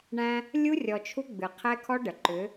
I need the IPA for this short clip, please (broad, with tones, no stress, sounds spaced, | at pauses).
ɳ æ̃˦ | lʲ u˦ rʲ ɔ˨ t͡ʃʰ u˦ ɡ͡b ɨ˨ qʰ ɛ˦ kʰ ɔ˦ ɖ ə˨ ǃ ʏ˨˦